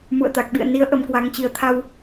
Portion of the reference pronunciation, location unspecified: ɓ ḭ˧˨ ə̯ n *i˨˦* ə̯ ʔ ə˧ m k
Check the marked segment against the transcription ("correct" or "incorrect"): correct